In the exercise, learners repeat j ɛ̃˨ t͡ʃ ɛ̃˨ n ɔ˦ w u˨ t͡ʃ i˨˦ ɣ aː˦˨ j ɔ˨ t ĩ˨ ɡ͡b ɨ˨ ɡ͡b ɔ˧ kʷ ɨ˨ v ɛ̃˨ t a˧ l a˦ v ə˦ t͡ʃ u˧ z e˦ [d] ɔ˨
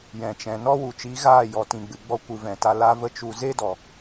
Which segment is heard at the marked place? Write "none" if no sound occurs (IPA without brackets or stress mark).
d